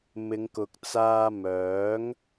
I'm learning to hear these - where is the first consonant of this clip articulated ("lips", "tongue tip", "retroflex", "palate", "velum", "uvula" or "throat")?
lips